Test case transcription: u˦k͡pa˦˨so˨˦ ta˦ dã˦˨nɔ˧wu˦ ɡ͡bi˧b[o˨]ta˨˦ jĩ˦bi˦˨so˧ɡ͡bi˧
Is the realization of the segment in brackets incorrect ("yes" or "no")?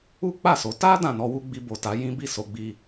no